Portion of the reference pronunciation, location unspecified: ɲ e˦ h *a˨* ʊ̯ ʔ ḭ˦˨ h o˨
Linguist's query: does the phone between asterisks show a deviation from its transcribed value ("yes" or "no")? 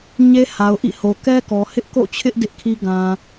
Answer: no